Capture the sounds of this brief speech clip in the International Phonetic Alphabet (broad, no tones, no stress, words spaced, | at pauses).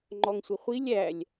ŋ͡ǃɔŋsʷɪχʷilʲ ælʲ